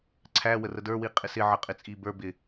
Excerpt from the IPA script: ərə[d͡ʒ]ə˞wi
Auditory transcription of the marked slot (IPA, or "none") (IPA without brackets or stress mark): d